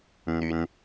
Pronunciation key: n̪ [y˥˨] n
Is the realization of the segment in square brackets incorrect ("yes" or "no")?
yes